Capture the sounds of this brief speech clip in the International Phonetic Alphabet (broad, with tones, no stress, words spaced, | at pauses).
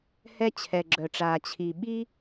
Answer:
hɛ˥ t͡ɕʰɛ˩ ɡ͡ǁœ˩ʈ͡ʂaː˩ t͡ɕʰi˩ɓi˥